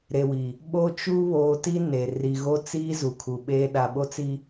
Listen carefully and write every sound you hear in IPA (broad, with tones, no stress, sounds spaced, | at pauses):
ɾ e˨ w i˨ | ɓ o˦ t͡ʃ u˦ β oː˨ t i˦ n e˨ r i˨ ɣ o˦ t͡s iː˦ z u˨ kʰ u˨ ɓ eː˦ ɗ a˨ ɓ o˦ t͡s i˦